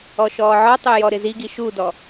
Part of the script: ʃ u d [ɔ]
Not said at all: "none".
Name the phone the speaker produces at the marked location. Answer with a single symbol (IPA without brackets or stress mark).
ɔ